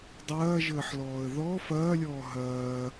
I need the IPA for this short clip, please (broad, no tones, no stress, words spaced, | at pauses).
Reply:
dˤɐːʒəːħlɔːə̯ ðɔ fɐːlʲɔː ɦɐː